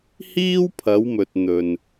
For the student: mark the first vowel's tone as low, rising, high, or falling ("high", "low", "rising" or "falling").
high